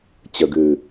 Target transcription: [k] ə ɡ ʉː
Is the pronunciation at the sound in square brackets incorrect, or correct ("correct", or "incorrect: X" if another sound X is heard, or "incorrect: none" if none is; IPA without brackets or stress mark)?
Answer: incorrect: t͡ɕ